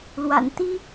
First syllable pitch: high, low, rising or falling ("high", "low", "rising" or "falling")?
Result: low